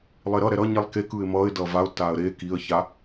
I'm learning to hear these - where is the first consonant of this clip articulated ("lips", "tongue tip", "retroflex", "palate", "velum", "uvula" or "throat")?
tongue tip